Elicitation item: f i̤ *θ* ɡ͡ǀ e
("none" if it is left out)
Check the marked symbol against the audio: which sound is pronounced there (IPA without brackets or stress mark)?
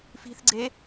θ